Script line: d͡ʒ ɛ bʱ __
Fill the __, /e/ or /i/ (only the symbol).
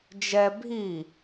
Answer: i